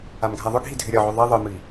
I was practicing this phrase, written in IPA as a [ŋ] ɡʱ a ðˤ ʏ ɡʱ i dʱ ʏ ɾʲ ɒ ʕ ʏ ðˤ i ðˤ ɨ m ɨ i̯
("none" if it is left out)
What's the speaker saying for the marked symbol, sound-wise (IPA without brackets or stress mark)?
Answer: m